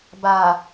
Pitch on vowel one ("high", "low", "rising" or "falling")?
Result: low